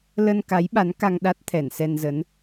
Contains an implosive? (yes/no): yes